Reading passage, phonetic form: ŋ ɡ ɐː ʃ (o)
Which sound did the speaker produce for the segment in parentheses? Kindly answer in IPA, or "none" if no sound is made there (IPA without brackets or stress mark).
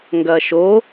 o